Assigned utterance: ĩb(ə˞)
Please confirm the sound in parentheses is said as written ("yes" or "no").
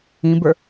yes